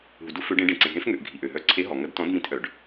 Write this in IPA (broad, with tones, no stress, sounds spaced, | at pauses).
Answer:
ɦ u˩ d u˨˥ f ø˨˥ ɖ ẽ˨˥ ɖ ẽ˩ ǀ ẽ˩ ɦ ẽ˨˥ f ŋ ø˩ ʔ ɡʱ i˩ ʔ ø˩ ɦ œ˨˥ ǀʰ e˨˥ ɦ ɔ˩ ŋ ɐ˨˥ d t ɔ̃˨˥ d m ĩ˨˥ t ʔ œ˩ ɖ